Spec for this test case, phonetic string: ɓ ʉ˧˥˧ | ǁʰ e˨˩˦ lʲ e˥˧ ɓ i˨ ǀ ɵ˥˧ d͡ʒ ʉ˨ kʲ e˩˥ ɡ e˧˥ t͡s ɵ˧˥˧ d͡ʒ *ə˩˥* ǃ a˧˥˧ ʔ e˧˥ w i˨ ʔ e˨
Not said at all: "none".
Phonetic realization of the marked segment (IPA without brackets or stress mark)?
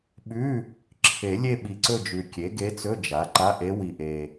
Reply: a˩˥